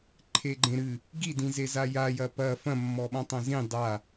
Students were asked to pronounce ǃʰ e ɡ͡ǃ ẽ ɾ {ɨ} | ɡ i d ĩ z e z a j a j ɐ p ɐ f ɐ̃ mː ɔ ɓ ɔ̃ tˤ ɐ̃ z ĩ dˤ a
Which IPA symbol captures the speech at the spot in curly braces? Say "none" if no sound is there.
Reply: ɨ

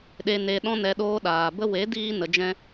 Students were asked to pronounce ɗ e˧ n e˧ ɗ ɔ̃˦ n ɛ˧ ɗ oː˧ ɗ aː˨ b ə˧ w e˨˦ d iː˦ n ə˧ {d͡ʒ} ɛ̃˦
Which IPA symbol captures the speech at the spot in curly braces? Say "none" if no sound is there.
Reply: d͡ʒ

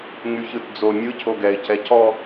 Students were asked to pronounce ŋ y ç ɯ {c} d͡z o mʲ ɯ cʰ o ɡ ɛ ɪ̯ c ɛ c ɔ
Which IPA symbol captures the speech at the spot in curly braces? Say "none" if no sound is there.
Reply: t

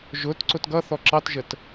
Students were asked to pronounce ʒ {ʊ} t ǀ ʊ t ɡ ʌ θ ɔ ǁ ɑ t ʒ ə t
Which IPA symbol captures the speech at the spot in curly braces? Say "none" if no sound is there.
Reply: ʊ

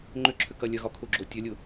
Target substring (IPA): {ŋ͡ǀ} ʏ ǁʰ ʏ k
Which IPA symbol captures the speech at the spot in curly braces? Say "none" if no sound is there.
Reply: ŋ͡ǃ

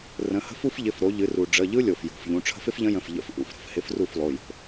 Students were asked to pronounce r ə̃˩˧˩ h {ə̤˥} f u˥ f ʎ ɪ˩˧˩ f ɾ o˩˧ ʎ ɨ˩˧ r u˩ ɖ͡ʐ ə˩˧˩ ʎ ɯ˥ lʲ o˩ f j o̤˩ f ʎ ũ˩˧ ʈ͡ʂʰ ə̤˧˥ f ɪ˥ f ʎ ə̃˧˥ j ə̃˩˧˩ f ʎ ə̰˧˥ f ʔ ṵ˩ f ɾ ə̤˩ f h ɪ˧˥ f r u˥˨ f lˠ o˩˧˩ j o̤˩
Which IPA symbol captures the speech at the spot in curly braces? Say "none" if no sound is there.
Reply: ə̤˥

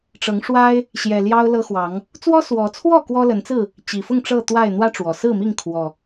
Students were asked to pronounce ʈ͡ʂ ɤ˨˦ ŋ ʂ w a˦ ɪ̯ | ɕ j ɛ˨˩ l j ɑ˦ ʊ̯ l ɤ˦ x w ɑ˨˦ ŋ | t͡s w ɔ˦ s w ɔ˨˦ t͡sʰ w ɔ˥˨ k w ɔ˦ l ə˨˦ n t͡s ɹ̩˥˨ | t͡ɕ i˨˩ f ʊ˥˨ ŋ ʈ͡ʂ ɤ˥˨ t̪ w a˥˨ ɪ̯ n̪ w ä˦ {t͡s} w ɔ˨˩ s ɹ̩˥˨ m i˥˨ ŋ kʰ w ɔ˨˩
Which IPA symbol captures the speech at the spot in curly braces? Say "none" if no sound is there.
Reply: ʈ͡ʂ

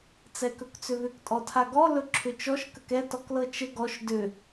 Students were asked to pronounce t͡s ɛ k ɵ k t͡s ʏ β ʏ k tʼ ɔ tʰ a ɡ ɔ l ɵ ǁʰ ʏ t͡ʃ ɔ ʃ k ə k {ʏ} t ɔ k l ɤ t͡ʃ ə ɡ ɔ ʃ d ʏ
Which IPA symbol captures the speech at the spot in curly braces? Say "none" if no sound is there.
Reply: ɛ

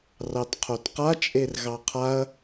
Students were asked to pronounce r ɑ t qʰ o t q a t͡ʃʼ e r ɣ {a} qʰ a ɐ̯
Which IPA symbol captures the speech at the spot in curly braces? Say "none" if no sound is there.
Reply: ɑ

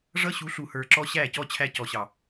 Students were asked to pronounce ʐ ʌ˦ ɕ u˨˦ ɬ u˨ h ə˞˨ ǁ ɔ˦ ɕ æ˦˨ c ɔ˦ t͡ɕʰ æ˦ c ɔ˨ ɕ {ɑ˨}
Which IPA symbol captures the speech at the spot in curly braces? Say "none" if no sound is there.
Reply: ɑ˨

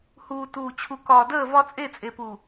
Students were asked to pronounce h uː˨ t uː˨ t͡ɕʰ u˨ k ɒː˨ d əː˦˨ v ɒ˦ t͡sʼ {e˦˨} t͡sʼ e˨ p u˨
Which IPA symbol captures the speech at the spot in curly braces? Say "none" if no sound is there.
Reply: e˦˨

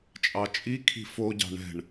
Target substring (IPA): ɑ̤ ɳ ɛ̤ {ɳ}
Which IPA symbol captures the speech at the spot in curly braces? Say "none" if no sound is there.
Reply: ɳ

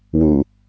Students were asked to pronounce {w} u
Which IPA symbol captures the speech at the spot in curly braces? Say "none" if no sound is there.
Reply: w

